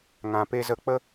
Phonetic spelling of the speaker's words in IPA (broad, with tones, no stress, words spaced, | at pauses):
ŋã˧pe˦zə˦ k͡pə˦